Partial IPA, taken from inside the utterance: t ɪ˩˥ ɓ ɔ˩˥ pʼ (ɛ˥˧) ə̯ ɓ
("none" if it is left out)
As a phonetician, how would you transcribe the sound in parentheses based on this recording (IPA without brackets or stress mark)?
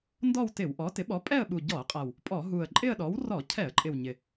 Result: ɛ˥˧